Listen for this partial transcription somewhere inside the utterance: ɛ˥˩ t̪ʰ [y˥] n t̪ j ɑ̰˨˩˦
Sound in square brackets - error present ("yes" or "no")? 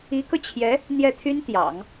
no